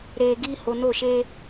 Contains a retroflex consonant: no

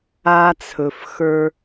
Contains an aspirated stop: yes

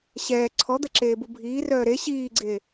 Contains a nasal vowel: no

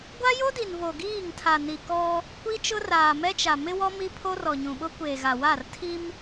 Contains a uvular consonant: no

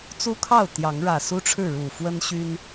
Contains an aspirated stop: yes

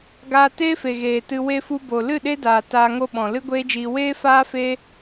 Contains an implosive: yes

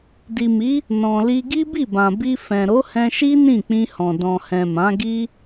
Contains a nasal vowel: yes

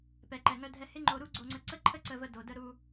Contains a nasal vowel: no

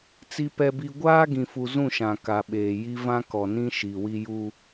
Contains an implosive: yes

